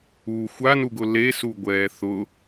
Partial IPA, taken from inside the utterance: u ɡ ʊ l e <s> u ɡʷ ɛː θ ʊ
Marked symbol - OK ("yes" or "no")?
yes